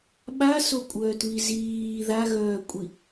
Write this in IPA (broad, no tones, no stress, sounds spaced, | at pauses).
ɓ a s o kʷʼ œː t β i z iː ð a ɣ œː kʷʼ i